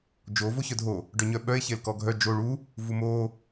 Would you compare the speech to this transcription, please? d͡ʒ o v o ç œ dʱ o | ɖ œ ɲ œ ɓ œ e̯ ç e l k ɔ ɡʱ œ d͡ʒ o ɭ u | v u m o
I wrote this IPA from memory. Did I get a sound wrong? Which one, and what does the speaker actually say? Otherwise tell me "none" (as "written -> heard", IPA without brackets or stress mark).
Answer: none